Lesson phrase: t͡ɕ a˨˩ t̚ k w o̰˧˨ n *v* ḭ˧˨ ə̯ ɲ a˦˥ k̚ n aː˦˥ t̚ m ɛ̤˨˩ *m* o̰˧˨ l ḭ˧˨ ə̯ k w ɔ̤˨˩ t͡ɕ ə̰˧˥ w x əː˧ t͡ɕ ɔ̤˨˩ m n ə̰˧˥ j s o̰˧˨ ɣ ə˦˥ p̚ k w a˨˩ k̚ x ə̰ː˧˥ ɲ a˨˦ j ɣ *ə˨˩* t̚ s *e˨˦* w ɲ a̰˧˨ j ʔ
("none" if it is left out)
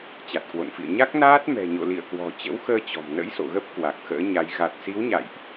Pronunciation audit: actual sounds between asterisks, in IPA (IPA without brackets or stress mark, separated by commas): f, ɲ, a˨˩, i˨˦